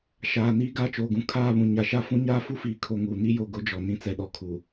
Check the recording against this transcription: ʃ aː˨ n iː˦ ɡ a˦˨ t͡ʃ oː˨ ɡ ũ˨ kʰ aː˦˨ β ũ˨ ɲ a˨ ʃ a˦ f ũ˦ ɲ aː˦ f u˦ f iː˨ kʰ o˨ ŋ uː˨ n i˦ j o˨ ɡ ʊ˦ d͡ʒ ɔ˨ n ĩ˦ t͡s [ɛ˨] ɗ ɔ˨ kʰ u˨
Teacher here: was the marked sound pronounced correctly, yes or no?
yes